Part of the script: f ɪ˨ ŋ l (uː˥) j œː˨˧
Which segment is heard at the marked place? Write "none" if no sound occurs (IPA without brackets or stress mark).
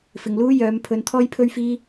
uː˥